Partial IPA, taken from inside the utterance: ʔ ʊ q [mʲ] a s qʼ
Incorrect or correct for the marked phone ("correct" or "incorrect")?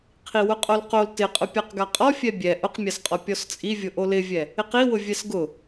correct